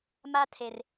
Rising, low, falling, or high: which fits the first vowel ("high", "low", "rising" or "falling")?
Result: high